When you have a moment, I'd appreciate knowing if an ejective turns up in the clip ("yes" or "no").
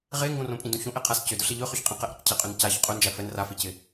yes